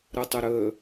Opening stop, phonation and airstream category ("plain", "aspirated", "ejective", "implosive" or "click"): plain